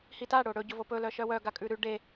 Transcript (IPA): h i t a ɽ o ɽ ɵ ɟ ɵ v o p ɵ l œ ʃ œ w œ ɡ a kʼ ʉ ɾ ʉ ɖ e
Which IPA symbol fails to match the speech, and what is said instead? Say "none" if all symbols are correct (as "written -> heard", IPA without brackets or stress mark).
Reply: none